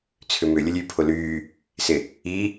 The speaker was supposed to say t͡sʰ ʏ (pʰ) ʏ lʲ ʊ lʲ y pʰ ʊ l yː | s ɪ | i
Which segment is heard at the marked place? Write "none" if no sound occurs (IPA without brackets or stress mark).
m